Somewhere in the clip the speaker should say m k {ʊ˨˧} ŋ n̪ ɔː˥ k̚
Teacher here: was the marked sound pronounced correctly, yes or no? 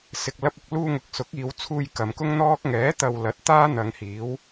no